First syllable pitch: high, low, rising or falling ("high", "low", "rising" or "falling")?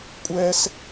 high